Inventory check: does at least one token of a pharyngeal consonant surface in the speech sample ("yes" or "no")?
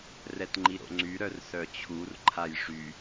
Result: no